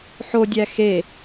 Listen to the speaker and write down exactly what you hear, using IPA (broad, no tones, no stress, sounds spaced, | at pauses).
ħ o dʲ æ x e